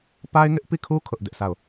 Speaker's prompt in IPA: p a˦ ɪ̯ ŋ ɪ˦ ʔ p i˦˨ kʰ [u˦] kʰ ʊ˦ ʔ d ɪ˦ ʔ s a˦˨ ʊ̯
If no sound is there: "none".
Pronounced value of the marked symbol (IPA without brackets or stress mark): u˦